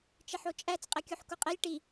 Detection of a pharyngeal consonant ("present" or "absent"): present